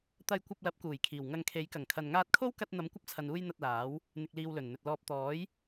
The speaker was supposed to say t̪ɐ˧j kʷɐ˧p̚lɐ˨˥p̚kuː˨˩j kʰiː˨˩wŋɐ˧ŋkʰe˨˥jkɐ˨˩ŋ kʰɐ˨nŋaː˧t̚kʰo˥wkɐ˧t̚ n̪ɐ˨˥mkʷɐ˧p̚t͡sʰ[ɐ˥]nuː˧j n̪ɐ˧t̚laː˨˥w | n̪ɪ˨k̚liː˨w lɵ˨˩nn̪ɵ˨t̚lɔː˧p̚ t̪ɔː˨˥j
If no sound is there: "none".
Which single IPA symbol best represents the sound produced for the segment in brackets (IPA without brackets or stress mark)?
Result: ɐ˨